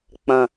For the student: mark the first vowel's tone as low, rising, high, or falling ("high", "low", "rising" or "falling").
low